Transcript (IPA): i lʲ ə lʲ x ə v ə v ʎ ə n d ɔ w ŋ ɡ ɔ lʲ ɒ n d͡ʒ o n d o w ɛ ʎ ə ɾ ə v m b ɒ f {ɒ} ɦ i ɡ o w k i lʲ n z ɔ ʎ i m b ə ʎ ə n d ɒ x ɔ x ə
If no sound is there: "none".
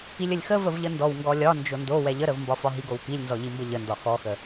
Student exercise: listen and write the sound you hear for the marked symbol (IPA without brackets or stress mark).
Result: ɒ